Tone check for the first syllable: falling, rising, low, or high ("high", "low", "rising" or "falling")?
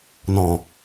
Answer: low